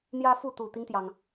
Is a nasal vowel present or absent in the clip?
absent